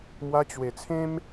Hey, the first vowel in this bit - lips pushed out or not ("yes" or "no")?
no